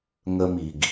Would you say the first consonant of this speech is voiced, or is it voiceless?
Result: voiced